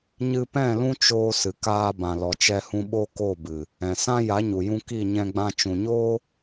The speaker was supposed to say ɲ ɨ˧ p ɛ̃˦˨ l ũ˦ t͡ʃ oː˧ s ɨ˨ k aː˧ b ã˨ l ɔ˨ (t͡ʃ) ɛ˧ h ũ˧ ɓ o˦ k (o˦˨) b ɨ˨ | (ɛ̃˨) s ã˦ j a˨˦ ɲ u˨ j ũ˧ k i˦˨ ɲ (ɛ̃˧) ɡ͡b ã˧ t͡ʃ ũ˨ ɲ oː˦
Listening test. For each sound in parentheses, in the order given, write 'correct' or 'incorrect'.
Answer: correct, correct, correct, correct

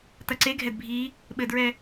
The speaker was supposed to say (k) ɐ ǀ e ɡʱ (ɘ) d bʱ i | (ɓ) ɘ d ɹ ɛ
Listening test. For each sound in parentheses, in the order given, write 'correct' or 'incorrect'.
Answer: incorrect: t, incorrect: ɛ, correct

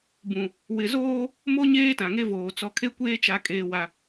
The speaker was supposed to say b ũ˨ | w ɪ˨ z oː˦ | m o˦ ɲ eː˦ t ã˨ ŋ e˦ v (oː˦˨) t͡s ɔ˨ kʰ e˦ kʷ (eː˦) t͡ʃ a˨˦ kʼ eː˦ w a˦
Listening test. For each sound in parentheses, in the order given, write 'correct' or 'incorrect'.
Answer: incorrect: oː˨, correct

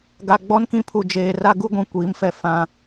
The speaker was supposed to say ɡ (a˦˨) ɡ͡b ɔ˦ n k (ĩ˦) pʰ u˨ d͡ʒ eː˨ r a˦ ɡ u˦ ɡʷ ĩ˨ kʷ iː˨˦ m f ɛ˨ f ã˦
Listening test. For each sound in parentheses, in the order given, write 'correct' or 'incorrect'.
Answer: incorrect: a˨, correct

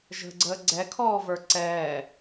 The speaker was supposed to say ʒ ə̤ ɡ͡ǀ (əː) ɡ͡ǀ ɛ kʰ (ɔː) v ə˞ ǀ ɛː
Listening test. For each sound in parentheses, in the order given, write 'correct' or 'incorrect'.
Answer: correct, correct

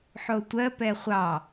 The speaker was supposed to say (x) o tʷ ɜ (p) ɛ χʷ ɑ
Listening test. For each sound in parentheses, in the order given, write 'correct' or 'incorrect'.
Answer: incorrect: ħ, correct

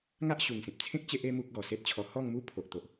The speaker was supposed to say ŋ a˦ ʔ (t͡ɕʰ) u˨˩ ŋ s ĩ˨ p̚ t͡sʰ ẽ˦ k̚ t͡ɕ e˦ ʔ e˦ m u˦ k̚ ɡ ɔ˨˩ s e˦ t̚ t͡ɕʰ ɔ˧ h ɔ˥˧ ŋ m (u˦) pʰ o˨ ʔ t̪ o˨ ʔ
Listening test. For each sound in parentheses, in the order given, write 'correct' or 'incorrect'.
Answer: incorrect: ɕ, correct

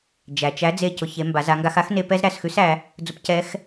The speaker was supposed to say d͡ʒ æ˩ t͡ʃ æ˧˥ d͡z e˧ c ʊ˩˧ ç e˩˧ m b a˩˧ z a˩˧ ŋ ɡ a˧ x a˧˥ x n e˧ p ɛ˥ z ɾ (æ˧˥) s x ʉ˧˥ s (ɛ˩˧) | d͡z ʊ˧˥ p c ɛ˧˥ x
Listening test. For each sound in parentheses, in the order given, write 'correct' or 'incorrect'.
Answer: incorrect: æ˩˧, incorrect: æ˩˧

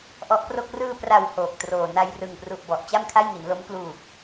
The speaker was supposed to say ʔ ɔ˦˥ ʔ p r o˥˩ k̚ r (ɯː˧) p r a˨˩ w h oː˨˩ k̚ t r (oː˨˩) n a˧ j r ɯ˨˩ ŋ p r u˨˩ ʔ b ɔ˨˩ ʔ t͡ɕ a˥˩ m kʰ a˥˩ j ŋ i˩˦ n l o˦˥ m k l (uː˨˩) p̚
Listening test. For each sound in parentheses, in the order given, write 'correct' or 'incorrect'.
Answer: correct, correct, correct

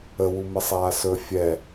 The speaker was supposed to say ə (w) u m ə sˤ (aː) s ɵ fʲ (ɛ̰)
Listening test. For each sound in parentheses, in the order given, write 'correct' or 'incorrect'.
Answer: correct, correct, incorrect: ɛ

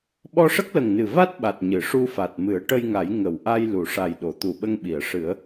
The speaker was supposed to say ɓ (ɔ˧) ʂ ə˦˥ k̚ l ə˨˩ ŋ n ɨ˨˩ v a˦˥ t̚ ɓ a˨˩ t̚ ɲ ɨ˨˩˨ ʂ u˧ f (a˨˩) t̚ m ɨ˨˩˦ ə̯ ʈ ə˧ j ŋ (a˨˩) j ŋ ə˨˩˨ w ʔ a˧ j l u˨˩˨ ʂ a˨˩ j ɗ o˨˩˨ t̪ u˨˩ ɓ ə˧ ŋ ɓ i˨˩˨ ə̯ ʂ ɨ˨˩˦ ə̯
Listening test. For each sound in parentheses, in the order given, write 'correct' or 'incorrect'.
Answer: correct, correct, incorrect: a˨˩˦

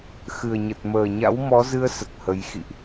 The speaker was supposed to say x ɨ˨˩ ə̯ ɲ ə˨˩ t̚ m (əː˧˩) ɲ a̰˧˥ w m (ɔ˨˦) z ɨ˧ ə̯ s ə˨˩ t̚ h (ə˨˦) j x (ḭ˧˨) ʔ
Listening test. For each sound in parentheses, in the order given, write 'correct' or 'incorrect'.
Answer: incorrect: əː˨˩, correct, incorrect: ə˧, correct

